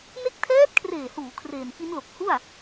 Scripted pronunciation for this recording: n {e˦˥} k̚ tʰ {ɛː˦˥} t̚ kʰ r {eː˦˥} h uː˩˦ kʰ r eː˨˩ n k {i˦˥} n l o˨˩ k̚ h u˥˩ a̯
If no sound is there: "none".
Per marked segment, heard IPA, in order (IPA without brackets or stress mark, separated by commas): e˦˥, ɛː˦˥, eː˨˩, i˦˥